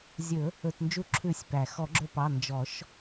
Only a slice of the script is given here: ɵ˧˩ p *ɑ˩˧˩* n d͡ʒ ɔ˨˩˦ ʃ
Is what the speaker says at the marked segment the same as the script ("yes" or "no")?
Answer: yes